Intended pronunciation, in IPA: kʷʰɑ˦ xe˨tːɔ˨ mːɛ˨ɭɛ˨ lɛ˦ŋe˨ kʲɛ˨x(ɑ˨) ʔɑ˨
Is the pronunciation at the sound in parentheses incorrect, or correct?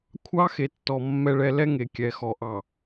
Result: incorrect